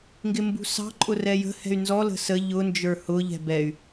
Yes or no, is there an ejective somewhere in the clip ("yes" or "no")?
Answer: yes